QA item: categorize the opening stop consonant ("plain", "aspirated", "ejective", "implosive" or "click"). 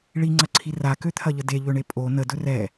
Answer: click